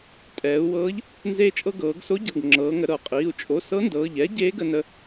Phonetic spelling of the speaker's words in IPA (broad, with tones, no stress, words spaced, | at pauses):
tʼɛː˩˧u̯wɤː˧˥ʎ | nzeː˧t͡ʃʼɤ˧ɡɤː˩˧ɡso˧˥ ɟɤ˩˧˩ɡŋ͡ǁɤː˩˧ŋə˩˧ ɾɤ˩qʼiː˩˧˩u̯ t͡ʃʼo˩˧˩ sɤ˧˥ndɤː˩˧˩ʎɛː˧˥ ɟeː˧˥ɡə˧nə˧